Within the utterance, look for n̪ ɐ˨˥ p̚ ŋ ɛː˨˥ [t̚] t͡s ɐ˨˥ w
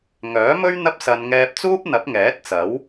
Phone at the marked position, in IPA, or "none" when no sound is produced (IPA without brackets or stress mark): t̚